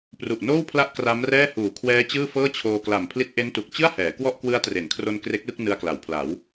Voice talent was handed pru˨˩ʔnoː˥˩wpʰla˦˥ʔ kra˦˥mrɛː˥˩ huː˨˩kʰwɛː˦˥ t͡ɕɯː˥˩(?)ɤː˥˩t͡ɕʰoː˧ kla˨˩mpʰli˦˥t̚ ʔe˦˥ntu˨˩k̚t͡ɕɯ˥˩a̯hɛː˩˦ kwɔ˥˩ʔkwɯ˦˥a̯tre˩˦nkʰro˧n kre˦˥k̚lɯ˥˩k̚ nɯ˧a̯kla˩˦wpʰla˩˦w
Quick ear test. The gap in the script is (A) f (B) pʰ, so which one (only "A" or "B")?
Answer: A